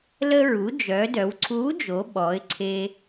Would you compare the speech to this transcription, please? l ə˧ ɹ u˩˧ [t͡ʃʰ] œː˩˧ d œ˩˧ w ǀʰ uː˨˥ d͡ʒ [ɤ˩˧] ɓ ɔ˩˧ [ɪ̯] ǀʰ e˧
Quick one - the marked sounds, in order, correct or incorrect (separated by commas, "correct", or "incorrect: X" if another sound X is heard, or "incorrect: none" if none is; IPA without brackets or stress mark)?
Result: incorrect: d͡ʒ, incorrect: o˩˧, correct